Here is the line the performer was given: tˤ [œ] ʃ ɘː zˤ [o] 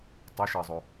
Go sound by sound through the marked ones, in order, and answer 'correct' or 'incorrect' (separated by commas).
incorrect, correct